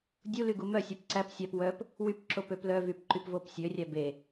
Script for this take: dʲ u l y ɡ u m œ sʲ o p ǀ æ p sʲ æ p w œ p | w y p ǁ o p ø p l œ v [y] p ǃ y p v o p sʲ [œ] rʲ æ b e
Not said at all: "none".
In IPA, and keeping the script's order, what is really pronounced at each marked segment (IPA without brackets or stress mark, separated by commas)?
y, ø